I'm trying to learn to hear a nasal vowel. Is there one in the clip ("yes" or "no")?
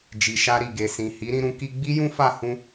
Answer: yes